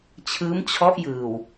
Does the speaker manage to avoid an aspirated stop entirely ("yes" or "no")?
no